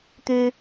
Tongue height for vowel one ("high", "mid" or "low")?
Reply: high